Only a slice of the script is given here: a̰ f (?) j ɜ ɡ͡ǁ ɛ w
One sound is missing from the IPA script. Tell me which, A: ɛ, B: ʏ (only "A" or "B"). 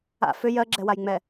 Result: B